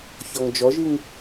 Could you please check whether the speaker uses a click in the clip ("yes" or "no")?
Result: no